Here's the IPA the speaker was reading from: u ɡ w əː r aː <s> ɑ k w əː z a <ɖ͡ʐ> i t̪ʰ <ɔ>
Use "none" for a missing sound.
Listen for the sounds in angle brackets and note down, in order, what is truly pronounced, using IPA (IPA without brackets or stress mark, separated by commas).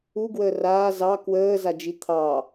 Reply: z, d͡ʒ, ɑ